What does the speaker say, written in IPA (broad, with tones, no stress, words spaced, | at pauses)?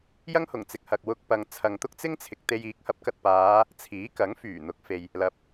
jɐ˥ŋhʊ˨˩ŋt͡sɪ˨k̚hɐ˨k̚ wʊ˧k̚pɐ˨ŋ t͡sʰɐ˨ŋt̪ʊ˥k̚t͡sɪ˥ŋt͡sʰɪ˨k̚ t̪e˧j iː˨˥k̚hɐ˨˥p̚kɐ˨t̚ paː˨˧ | t͡sʰiː˨˥kɐ˨˥ŋ fyː˨˩n̪ʊ˨˥k̚fe˨j | lɐ˨p̚